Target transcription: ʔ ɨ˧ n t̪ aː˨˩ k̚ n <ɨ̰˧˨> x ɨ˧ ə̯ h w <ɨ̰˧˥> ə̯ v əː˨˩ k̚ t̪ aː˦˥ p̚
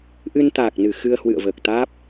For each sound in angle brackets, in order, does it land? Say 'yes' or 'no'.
no, no

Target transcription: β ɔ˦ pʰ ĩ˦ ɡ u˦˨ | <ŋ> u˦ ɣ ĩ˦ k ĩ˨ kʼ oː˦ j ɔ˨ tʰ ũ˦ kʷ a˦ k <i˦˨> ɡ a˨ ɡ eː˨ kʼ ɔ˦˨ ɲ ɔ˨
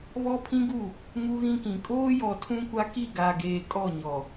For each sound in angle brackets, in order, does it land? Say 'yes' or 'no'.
yes, yes

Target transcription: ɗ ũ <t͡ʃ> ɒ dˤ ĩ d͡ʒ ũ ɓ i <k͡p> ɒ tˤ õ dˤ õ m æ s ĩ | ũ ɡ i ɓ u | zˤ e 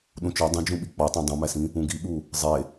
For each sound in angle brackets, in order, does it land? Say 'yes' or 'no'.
yes, yes

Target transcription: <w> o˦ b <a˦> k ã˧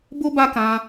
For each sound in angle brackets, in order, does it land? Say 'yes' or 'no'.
no, yes

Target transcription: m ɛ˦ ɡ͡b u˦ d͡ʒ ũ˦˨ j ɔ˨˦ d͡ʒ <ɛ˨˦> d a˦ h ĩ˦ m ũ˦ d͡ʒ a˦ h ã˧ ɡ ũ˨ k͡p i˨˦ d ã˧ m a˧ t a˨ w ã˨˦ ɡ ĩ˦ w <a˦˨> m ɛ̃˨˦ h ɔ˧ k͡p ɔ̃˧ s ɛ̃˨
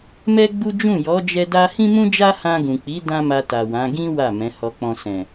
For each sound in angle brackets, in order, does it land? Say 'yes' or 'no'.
no, yes

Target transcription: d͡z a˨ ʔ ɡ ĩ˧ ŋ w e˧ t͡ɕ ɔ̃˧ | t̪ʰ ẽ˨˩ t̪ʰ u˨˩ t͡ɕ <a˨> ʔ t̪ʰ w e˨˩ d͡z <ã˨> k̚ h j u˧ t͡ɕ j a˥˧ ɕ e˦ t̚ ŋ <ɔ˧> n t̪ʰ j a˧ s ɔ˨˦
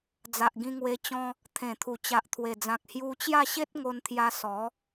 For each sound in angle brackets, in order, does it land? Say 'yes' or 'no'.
yes, yes, no

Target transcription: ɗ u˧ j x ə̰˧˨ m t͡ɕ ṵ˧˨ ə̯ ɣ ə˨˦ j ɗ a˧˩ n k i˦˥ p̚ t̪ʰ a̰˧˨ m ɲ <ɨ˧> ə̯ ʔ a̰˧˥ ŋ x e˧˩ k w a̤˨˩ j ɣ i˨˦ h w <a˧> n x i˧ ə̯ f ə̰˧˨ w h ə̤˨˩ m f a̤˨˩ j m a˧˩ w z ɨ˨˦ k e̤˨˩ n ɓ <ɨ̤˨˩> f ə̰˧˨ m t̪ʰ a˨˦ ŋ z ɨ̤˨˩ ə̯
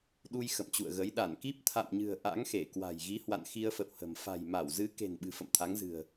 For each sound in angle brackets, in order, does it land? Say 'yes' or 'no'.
no, no, yes

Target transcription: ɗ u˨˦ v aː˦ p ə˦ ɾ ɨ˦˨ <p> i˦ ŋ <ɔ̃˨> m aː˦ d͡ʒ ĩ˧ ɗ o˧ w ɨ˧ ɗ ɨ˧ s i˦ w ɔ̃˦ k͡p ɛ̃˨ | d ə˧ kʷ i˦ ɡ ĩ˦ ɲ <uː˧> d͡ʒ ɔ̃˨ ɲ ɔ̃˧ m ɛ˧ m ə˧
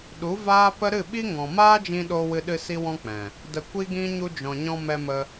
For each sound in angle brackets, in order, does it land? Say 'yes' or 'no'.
no, yes, no

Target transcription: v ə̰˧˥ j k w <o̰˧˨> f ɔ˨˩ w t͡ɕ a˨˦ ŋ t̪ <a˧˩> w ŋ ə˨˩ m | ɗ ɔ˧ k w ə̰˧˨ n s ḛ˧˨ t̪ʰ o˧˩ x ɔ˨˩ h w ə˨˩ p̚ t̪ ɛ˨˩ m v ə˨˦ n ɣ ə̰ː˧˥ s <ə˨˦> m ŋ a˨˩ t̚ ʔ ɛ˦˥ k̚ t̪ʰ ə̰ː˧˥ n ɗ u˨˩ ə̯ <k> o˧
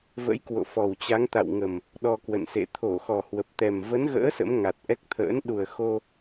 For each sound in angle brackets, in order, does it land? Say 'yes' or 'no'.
yes, no, no, no

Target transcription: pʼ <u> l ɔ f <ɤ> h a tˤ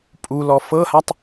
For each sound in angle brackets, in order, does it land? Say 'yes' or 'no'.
yes, yes

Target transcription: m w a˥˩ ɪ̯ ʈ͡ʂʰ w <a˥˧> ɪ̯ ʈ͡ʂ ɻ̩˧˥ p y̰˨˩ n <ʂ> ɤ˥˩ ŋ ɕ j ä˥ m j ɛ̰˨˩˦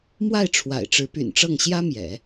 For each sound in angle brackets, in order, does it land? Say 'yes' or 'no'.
no, no

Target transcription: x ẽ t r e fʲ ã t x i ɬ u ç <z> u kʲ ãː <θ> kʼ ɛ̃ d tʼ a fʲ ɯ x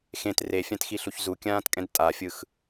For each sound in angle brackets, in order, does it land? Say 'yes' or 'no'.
yes, no

